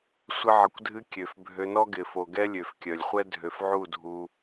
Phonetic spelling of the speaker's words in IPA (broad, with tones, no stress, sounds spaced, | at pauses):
sʷ ə˧ ʕ ə˨ kʷ dʱ ɨ˧ kʲ ø˨ f bʱ ø˧ n ɔ˦ ɡ ɪ˨ f o˨ ɡ ɛ˦ lʲ ø˨ f kʲ œ˨ lʲ χʷ ɛ˦ dʱ ø˨ f ʕ u˦˨ dʱ u˧